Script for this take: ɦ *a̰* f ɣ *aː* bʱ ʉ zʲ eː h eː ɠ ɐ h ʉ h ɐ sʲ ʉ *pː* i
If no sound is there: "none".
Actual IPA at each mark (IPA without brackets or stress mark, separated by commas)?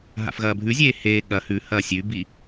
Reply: a̰, ɐː, b